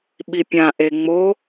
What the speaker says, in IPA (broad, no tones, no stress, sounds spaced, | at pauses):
ɓ i pʲ ã ʔ e ŋ͡m o